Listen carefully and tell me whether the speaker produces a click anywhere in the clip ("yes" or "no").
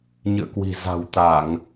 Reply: no